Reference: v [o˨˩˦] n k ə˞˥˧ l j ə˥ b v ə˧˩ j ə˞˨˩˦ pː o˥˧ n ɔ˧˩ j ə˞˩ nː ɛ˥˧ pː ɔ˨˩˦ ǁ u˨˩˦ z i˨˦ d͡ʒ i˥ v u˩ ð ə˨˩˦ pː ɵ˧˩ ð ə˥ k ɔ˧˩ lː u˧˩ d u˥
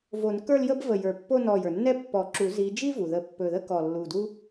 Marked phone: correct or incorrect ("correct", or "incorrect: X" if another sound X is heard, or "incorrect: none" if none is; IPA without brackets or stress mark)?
correct